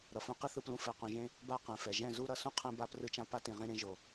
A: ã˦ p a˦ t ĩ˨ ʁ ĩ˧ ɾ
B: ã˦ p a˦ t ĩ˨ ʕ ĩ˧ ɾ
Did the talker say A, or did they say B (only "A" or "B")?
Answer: A